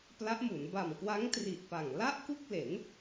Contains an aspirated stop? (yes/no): no